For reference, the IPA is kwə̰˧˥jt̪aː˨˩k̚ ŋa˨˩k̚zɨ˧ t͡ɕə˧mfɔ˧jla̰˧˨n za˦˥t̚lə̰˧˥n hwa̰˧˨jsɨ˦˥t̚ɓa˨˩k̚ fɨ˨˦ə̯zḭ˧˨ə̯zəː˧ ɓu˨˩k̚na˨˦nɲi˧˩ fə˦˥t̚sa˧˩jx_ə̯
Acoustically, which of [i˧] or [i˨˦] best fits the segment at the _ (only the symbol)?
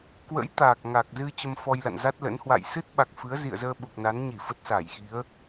i˨˦